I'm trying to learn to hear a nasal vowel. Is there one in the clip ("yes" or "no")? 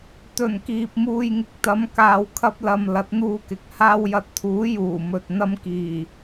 no